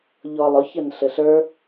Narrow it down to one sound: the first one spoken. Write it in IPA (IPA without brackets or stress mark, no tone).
ʎ